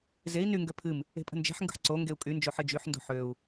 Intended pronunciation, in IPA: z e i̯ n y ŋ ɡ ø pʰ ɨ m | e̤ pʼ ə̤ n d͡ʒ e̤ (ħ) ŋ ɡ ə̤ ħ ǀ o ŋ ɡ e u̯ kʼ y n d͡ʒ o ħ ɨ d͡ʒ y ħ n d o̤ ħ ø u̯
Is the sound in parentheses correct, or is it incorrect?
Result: correct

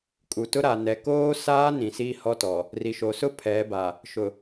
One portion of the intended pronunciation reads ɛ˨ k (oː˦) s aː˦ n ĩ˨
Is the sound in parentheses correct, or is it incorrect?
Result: correct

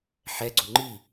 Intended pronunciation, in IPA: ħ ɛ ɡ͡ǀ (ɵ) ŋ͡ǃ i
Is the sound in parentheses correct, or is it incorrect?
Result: incorrect: o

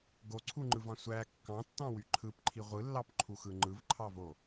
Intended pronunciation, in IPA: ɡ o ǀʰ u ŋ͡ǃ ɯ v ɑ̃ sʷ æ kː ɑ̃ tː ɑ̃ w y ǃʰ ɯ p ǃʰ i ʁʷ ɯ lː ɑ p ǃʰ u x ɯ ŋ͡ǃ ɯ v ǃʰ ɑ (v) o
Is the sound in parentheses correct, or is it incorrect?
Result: correct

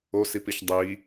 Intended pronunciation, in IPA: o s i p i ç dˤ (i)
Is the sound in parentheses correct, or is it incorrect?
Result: correct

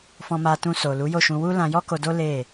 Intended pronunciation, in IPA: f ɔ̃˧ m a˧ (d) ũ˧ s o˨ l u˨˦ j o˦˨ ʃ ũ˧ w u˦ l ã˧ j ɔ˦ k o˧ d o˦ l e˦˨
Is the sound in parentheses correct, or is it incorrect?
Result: incorrect: t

